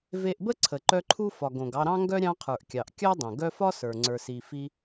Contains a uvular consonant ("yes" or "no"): yes